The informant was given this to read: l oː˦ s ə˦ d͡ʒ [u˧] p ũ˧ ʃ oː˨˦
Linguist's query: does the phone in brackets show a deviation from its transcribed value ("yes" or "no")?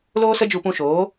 no